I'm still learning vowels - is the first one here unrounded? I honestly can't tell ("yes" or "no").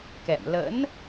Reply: yes